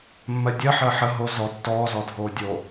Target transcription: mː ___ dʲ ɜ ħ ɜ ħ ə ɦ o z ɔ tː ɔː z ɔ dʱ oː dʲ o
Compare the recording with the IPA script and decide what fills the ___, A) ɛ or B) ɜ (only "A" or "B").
B